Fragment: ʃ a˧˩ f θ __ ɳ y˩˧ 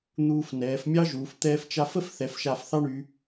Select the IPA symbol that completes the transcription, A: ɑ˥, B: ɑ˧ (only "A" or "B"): A